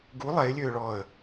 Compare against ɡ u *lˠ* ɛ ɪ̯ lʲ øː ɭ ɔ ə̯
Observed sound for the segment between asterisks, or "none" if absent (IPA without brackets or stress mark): lˠ